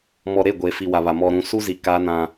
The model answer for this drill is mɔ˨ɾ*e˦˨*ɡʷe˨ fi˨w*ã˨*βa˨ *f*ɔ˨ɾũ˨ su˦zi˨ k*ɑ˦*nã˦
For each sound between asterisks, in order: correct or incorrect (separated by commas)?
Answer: correct, incorrect, incorrect, incorrect